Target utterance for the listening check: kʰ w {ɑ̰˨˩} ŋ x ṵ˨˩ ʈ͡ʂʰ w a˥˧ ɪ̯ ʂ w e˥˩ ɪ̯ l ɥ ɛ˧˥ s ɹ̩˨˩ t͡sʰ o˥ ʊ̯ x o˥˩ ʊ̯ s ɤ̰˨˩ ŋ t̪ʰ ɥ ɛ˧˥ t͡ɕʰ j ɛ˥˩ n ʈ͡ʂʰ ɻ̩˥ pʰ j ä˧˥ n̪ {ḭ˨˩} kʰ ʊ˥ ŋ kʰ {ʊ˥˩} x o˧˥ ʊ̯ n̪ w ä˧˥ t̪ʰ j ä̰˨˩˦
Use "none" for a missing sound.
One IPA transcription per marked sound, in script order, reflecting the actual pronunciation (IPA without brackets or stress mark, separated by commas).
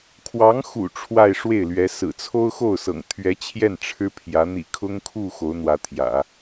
ɑ˧˥, ḭ˨˩, u˥˩